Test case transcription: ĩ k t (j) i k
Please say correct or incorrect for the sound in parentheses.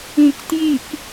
correct